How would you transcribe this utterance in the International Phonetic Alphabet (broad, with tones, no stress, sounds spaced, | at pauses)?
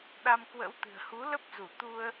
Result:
ɗ a˧ m k w ə̰˧˥ w t̪ ɨ̤˨˩ ə̯ h u˨˦ l ə˦˥ p̚ z u˧˩ t̪ u˧ ə̯